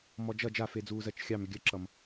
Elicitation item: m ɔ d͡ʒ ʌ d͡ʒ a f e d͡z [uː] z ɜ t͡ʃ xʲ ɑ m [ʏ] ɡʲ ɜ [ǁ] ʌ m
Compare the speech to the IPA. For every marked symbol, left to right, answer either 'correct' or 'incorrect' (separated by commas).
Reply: correct, correct, correct